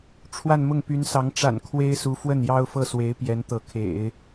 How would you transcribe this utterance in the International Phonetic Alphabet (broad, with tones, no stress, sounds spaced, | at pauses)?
ʈ͡ʂʰ w a˥˧ n m ʊ˥˩ ŋ p y˧˥ n s ɑ˧˥ ŋ ʈ͡ʂ a̰˨˩ n kʰ w e˥ ɪ̯ s u˧˥ f w ə˥˩ n j ɑ˥ ʊ̯ f ɤ˥˩ s w e˧˥ ɪ̯ p j ɛ˧˥ n t̪ ɤ˧˥ kʰ ḛ˨˩˦ ɪ̯